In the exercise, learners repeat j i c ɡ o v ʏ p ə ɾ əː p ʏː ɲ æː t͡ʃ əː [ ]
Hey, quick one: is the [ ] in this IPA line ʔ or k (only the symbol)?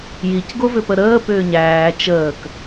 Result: k